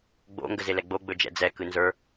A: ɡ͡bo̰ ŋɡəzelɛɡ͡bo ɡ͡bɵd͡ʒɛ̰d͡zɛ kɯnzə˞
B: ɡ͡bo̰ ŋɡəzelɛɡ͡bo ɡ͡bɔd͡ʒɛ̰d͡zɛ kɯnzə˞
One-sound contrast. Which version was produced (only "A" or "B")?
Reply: A